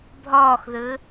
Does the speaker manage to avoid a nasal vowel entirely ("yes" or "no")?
yes